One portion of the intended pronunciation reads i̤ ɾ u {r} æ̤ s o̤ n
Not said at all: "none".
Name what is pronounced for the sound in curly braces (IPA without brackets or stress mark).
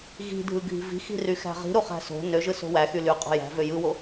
χ